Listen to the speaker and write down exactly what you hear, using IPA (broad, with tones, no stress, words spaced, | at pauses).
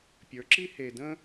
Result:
pʲə˞˨˦ǁi˦ he˨də̃˦